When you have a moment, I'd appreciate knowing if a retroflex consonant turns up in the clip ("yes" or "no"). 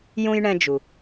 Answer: yes